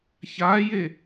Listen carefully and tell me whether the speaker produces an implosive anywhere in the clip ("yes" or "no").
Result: no